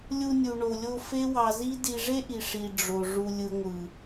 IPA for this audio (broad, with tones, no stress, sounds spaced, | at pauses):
lʲ u˧ nʲ u˨ ɳ o˨ lʲ o˧ f e˦ w ɑ˧ z i˦ d i˧ ʐ e˦ ʔ i˨ ʂ i˨ ɖ͡ʐ o˨ ʐ u˨ lʲ ɯ˨ ŋʷ ɯ˨